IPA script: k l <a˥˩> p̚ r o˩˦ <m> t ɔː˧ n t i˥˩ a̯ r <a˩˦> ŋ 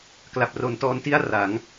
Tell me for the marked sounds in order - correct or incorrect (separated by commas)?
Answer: incorrect, incorrect, correct